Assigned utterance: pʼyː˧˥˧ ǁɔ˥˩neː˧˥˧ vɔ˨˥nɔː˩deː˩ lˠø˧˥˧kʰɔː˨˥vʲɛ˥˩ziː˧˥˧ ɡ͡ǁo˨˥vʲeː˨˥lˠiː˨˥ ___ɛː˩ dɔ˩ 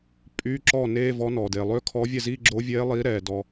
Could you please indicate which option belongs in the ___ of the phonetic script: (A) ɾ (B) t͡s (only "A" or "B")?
A